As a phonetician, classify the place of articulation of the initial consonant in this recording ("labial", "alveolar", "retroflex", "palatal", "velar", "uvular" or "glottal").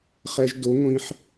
uvular